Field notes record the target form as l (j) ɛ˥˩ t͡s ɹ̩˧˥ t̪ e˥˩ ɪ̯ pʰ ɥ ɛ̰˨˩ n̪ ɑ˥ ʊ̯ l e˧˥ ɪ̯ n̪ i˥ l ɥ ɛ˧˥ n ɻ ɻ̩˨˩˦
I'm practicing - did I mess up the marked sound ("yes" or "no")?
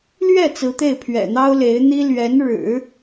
yes